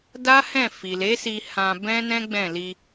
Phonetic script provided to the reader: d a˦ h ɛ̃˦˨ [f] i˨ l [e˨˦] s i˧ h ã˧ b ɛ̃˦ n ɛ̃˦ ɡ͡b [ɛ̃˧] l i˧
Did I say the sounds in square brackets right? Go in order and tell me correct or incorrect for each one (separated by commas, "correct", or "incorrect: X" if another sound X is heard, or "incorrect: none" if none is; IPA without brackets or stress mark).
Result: correct, correct, incorrect: ɛ̃˦˨